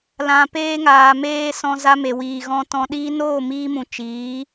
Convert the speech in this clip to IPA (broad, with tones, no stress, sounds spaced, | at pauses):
l ã˨ p eː˧ ŋ aː˨ m eː˧ s ɔ̃˧ z a˧ m e˨ w iː˨ ɣ ɔ̃˧ t ɔ̃˧ ɗ iː˧ n oː˦˨ m iː˧ m ũ˨ t͡ʃ iː˨˦